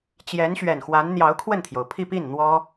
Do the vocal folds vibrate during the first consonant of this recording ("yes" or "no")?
no